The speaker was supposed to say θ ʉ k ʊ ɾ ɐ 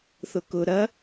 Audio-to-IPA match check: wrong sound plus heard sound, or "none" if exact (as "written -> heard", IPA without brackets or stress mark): ʉ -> ʊ